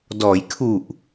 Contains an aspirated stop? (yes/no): yes